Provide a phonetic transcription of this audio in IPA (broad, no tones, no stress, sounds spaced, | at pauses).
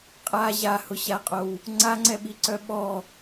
qʼ a ʑ a h ʊ ɕ a qʼ o w | ŋ͡ǀ a ŋ͡ǀ ɛ ɓ i ǀ œ ɓ ɔ